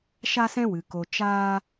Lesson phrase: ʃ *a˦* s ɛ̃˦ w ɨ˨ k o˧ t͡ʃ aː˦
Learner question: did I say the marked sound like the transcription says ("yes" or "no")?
yes